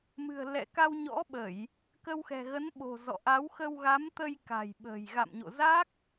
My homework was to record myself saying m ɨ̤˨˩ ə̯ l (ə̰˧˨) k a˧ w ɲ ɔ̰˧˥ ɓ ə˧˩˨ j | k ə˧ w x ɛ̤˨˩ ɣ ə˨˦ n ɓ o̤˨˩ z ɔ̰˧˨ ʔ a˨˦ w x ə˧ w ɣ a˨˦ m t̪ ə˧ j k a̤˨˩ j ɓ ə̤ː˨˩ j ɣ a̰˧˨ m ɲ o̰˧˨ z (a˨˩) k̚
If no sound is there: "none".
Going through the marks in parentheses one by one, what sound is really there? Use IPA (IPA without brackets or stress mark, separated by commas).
ɛ̰˧˨, a˦˥